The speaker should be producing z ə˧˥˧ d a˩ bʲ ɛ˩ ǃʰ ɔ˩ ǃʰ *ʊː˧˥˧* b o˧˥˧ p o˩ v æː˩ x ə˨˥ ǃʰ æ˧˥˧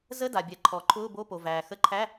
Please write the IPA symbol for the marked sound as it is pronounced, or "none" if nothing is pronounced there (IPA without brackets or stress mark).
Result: ʊː˧˥˧